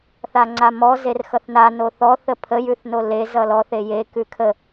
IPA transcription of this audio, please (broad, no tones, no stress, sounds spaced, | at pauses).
θ a ŋ͡ǀ a m ɔ z e r x ʌ θ n a n o θ ɔ θ ə pʰ ə j ʉ θ n o l e z ʌ l ɔ θ e j e k ʉ kʰ ə